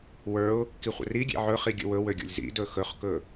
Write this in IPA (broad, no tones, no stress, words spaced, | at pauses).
wə˞ʊ̯ | kiχʷə̰ri ɡʲḛʕɵχi ɡʲə̰wɵwøɡʲo̰lʲ zḭdɵ xɵχkɵ